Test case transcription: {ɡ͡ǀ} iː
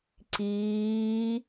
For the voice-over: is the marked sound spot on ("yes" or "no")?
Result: no